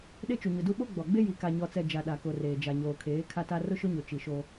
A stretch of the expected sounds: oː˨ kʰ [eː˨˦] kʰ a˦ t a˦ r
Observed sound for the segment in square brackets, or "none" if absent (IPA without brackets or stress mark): eː˨˦